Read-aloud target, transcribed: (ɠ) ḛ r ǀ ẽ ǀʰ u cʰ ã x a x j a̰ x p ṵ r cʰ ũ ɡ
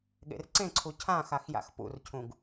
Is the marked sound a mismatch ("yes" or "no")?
no